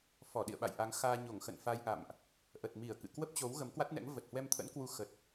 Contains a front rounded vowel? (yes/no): no